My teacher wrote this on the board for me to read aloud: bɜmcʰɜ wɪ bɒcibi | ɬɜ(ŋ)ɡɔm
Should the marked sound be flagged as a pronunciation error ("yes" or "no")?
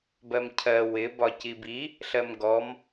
yes